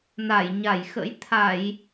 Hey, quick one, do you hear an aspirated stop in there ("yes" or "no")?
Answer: yes